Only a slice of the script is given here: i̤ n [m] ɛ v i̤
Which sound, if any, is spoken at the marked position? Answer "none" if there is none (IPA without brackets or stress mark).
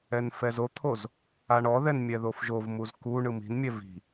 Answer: mʲ